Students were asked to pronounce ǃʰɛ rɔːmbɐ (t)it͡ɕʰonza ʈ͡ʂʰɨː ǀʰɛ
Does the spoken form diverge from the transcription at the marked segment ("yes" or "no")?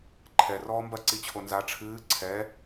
yes